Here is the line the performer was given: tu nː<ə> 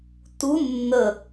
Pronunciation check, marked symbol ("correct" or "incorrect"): correct